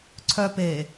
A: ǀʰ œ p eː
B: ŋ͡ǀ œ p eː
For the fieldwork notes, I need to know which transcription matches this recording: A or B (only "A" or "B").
A